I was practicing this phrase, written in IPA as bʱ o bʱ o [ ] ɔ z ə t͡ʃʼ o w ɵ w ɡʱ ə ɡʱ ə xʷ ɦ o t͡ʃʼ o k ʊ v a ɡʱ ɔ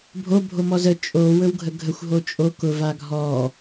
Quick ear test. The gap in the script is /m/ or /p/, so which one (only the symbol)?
m